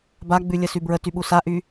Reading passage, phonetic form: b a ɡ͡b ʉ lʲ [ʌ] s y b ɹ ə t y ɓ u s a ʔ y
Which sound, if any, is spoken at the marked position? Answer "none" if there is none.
ə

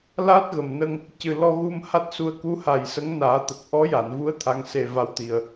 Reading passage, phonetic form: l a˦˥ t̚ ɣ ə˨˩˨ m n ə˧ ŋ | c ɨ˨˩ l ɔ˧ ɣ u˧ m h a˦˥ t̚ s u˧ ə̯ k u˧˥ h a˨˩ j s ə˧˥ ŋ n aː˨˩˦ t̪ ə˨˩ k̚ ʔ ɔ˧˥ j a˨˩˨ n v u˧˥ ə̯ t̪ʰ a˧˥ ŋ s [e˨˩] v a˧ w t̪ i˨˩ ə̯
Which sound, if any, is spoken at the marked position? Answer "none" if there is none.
e˧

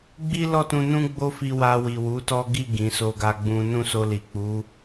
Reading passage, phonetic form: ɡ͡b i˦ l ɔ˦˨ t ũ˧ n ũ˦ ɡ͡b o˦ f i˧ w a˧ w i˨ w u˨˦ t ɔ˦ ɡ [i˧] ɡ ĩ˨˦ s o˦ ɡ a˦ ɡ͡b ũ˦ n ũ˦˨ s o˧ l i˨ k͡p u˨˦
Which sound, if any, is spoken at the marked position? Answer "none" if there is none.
i˦˨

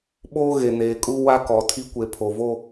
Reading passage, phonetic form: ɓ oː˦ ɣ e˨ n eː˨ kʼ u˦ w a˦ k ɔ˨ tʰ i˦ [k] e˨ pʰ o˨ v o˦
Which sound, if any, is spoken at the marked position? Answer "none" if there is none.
kʷ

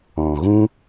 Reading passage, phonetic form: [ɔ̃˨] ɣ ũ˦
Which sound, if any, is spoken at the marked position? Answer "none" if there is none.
ɔ̃˨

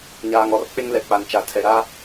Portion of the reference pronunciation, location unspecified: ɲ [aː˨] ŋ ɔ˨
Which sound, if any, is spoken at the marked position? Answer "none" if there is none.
aː˨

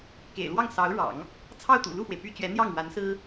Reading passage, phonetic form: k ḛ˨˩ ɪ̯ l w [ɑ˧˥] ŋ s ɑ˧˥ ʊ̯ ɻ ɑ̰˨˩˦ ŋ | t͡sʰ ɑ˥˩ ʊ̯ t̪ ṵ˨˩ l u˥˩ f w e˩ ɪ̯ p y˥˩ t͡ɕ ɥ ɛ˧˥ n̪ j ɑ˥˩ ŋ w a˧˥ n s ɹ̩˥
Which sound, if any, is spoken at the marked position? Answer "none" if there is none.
ɑ˥˩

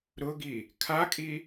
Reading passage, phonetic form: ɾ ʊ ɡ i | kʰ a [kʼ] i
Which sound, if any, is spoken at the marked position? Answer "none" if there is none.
kʼ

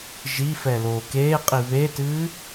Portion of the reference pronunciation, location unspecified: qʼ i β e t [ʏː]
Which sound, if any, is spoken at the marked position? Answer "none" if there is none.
ɨː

